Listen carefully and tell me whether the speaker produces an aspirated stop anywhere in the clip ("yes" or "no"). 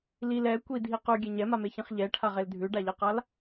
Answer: yes